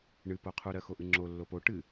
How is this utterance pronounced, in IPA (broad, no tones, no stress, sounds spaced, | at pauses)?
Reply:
ɳ ɨ p o qʰ u ɾ ɜ x o ʔ ɨ ŋ͡ǁ o lː o p o ʈ ɨ